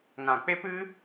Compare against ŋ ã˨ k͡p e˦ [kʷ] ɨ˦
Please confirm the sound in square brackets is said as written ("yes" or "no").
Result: no